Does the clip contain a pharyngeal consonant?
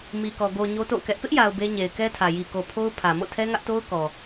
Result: no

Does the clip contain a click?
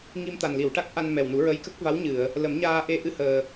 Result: no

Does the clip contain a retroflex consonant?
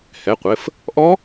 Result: no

